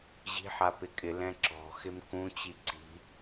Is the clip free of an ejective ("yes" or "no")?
no